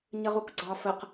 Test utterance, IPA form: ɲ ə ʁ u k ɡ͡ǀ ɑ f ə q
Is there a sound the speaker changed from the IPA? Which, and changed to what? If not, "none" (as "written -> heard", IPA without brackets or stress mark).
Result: none